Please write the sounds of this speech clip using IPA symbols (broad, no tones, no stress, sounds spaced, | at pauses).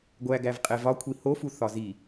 ɡʷ æ ɡ æ v qʼ e v ɒ kʷʰ i h o f u θ ɒ z i